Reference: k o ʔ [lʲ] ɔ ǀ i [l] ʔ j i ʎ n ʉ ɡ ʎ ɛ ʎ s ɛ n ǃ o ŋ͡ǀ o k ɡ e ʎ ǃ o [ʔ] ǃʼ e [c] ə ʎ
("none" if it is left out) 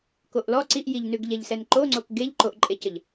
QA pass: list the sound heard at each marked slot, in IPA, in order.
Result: l, none, ʔ, c

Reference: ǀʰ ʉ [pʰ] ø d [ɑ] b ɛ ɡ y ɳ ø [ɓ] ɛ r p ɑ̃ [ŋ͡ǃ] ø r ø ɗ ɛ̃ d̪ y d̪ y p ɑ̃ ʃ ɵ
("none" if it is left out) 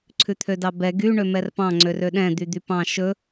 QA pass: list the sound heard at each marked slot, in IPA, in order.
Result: t̪ʰ, ɑ, m, ŋ͡ǀ

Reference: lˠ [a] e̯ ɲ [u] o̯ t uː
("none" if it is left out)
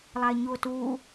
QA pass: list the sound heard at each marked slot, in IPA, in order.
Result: a, u

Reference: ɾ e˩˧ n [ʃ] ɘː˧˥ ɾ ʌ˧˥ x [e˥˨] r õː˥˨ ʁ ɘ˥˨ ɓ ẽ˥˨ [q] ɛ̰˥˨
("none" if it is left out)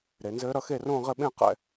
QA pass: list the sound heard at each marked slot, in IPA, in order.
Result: z, e˥˨, q

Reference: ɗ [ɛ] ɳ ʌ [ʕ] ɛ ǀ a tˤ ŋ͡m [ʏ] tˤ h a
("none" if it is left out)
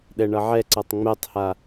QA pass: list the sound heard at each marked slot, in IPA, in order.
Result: ɛ, ʕ, ɛ

